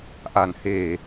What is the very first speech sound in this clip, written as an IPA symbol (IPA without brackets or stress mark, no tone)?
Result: ʔ